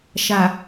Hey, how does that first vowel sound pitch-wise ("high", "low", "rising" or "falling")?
low